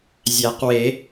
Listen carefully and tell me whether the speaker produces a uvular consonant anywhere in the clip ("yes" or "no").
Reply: yes